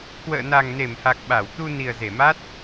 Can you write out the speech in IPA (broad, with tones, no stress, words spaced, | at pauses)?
kwə̰ː˧˨na˨˩ŋne˧˩mha˨˩k̚ ɓa˧˩w t̪u˧ ni˨˩ə̯ze˧˩ma˦˥t̚